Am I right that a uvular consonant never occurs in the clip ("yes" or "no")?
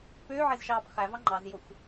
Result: no